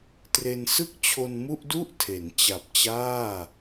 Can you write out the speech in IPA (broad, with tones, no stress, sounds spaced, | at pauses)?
t r e˧ n s ɯ˥˩ k̚ t͡ɕʰ o˧ n m u˥˩ ʔ d u˥˩ ʔ tʰ e˩˦ n t͡ɕ a˨˩ p̚ t͡ɕ aː˥˩